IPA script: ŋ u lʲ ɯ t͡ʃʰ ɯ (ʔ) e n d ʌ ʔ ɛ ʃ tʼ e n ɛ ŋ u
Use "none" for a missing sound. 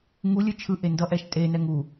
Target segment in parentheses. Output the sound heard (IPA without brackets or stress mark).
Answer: ʔ